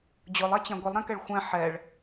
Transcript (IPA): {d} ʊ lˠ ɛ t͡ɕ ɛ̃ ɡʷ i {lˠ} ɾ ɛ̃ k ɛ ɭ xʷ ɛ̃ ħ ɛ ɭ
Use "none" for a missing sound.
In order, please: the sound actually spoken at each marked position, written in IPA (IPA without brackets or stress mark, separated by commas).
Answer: d͡ʑ, lˠ